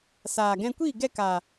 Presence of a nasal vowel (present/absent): present